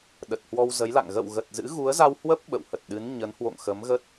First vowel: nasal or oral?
oral